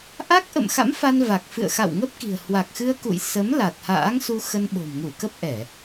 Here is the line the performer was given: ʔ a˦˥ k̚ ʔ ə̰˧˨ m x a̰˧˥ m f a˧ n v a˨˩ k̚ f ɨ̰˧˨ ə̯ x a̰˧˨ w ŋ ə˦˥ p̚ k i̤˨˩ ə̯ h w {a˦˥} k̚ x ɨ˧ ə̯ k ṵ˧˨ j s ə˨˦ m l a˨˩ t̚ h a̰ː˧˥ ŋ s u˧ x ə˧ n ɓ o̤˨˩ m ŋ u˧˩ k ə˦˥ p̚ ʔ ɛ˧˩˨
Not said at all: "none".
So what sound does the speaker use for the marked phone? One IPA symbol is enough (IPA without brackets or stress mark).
a˨˩